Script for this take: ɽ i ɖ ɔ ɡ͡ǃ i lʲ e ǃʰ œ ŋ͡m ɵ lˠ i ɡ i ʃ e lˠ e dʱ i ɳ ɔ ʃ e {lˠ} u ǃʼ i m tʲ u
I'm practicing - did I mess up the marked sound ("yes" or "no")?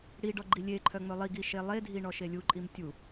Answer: yes